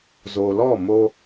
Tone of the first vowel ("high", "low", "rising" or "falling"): low